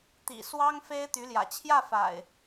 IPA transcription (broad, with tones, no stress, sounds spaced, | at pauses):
t̪ ḭ˨˩ s w ɑ˦ ŋ f e˦ ɪ̯ t̪ y˨˦ l j ä̰˨˩ t͡ɕʰ j ä˥˨ f a̰˨˩ ɪ̯